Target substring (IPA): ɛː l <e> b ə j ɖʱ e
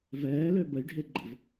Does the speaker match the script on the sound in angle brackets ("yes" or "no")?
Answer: no